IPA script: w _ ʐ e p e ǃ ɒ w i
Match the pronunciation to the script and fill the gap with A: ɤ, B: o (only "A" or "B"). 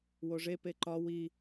B